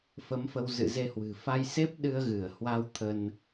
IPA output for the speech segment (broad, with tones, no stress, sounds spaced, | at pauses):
f ə˨˦ m f ə˧ w z ɨ̰˧˨ z e˧ h w ɨ̤˨˩ f a˧ j s e˦˥ p̚ ɗ ɨ˧ ə̯ ɣ ɨ˧˩ ə̯ h w a˧ w t̪ʰ ə˧ n